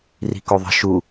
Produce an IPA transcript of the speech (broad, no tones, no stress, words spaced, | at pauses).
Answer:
ri̤koðˤə̤ ʃu